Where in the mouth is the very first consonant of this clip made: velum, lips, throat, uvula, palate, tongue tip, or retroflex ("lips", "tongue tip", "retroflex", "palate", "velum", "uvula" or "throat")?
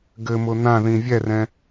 velum